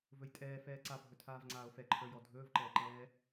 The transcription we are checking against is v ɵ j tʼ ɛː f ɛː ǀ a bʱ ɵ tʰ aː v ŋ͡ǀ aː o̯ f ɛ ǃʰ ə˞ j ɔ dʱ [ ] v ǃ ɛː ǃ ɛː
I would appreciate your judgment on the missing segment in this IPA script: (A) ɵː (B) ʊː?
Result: A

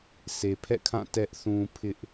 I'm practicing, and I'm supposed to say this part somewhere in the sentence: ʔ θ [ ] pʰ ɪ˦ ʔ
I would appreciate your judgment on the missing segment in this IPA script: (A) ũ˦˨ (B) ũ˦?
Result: B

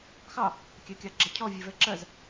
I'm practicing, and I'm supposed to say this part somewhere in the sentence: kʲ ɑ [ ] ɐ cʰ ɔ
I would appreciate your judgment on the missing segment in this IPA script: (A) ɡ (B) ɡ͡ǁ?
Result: B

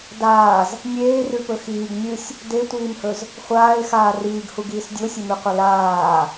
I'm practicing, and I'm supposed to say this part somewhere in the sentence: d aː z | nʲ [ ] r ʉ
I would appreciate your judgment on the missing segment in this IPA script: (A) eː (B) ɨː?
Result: A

